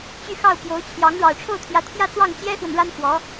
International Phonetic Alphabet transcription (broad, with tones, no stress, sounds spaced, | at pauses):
t͡ɕ y˥˧ x ɑ˥˩ ʊ̯ p j o˧˥ ʊ̯ t͡ɕʰ j ɑ˧˥ ŋ ɻ ɑ˨˩ ʊ̯ ʈ͡ʂʰ o˥˩ ʊ̯ t̪ʰ j ä˧˥ t̪ʰ j ä˥˧ t͡s w ɑ˥˩ ŋ t͡ɕ j ɛ˥ x w ə˨ n ɻ a˥ n x w ɔ˧˥